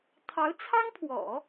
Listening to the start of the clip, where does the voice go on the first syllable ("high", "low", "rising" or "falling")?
rising